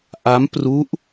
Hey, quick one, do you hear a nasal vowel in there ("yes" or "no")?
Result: no